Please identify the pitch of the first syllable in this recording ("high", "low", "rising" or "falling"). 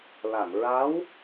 low